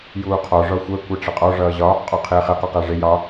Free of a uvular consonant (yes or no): no